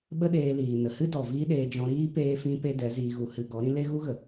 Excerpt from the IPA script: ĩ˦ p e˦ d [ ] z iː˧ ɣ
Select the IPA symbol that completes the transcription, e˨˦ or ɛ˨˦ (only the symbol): ɛ˨˦